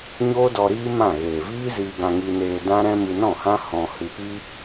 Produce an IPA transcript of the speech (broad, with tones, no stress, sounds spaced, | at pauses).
ɲ oː˦ d ɔ˧ ɾ iː˦ m ã˦˨ ɣ eː˨ v iː˦ z iː˧ ɡ ã˧ ŋ i˧ n eː˧ d ã˦ ɾ ɛ̃˦ m ɨ˧ n ɔ̃˦˨ h ã˦ h ɔ̃˧ h ɨ˧ p i˦